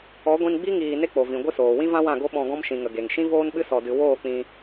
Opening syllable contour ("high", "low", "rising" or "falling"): rising